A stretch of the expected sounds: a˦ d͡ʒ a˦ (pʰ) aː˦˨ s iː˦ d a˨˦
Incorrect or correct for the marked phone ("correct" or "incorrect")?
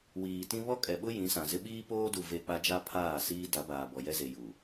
correct